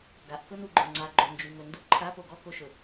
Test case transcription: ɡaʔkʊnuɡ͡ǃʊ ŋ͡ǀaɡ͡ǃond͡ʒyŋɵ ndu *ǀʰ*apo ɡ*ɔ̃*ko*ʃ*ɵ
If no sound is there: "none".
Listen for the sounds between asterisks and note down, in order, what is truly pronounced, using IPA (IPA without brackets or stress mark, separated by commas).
ǃʰ, ɔ, ʃ